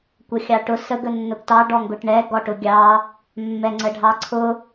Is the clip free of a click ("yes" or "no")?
no